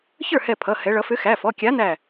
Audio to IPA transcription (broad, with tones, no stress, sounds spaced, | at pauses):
ç ə˞˥˩ h ɛ˧˩ pʰ ʌ˩˧˩ h ɛ˩˧ ɭ ʌ˩˧ f ʏ˨˥ x æ˩˧˩ f ɔ˩˧˩ kʲ a˨˥ n æ˧˩